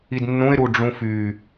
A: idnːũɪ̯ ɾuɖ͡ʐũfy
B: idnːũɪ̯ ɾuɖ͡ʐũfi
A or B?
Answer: A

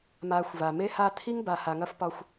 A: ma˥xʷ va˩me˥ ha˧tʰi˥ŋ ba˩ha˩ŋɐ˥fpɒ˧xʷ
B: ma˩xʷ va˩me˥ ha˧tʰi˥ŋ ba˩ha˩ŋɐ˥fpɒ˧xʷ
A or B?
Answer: B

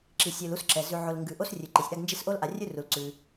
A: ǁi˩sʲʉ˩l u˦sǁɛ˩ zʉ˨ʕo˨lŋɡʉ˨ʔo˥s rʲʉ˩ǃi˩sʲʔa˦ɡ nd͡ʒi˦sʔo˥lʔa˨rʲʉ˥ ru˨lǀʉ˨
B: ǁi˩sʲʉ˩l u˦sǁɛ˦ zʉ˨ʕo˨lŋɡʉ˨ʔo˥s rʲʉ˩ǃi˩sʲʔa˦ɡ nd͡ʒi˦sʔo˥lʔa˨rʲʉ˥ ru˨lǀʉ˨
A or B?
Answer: A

